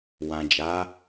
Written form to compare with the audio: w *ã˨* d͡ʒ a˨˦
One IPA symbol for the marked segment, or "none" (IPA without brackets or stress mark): ã˨